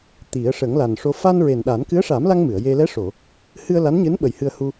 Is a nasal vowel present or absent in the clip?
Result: absent